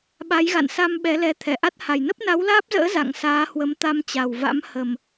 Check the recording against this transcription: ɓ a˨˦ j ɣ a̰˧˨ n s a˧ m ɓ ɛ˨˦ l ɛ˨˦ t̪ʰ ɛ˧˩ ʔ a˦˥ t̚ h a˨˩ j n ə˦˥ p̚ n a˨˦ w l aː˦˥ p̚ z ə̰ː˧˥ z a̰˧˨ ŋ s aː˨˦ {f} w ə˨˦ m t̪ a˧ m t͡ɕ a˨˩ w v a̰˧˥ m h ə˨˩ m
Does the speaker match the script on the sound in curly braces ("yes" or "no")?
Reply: no